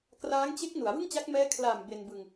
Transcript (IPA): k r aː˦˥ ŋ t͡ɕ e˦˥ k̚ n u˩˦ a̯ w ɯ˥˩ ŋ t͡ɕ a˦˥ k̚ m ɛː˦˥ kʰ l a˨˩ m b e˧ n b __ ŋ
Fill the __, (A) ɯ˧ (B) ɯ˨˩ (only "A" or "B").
A